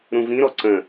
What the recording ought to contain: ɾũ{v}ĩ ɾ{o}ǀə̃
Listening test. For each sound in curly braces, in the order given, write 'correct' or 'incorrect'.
correct, incorrect: ɔ

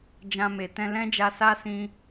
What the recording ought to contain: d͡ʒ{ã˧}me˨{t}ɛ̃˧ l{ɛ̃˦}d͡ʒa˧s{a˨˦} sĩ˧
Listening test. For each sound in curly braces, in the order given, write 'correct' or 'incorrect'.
correct, correct, correct, incorrect: a˦

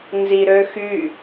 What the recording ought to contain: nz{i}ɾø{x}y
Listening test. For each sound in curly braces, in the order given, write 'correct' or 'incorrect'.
correct, correct

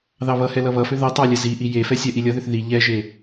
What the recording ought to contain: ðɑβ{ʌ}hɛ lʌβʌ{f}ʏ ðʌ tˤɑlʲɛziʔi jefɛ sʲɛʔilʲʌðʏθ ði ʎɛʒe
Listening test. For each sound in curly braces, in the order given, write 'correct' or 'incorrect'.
correct, correct

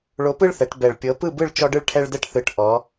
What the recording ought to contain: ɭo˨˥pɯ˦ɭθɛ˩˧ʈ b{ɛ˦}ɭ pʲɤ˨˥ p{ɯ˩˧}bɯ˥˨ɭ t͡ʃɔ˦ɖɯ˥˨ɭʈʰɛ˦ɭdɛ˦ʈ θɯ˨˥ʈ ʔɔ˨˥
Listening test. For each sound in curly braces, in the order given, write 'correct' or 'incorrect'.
incorrect: ɛ˨˩, incorrect: ɯ˥˨

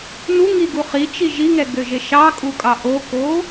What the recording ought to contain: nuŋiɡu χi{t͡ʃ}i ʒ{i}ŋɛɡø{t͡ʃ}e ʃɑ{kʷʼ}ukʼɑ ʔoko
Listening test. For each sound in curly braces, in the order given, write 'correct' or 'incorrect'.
correct, correct, incorrect: ʒ, incorrect: kʼ

